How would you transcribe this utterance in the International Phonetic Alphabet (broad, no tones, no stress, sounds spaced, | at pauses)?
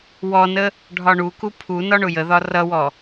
w ɔ n ə | ɖʱ ɒ ɳ u k u pʰ u n ɒ ɳ ʊ j ə ð ɒ r ʌ w ɔ